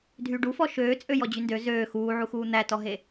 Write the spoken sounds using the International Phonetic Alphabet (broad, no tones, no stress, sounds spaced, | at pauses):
dʱ yː ɖ u f ɔ ʃ øː t͡sʼ ø j ɔ d͡ʑ y n d ø z øː x uː ʕ u x uː n̪ æ t ɔ ɦ e